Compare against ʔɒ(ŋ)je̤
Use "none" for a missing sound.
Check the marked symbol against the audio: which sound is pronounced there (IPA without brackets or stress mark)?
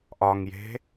ŋ